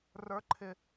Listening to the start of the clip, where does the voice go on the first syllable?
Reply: high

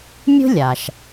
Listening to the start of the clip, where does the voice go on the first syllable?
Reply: high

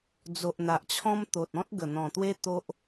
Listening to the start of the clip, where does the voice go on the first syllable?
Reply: low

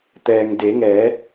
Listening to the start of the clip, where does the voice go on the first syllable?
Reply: low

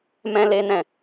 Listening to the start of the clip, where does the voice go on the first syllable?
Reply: high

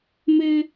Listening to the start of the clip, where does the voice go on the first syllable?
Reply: high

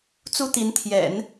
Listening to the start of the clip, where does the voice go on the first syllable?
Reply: high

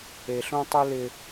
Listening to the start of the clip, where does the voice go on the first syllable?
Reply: low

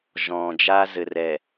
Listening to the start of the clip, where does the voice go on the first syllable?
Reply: low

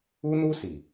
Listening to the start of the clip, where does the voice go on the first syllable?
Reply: high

